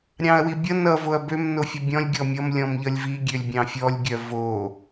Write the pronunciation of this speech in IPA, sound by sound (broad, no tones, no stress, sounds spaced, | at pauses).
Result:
ɾʲ ɑ̃ ɐ̯ w i bʲ ʌ n ʌ v o ɐ̯ b ø m n o fʲ ʌ bʲ ɔ̃ lʲ ɡʲ ɔ mʲ ʌ m lʲ ɔ̃ m ʎ ʌ lʲ v i ɡʲ ø lʲ bʲ ɑ̃ fʲ ɔ lʲ ɡʲ œ v o